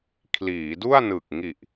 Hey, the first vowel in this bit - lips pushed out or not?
no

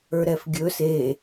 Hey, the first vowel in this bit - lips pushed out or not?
no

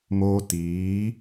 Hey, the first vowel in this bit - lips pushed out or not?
yes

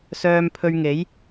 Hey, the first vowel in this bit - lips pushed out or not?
yes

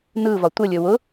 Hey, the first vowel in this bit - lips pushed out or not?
no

